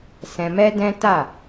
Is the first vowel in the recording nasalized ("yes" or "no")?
yes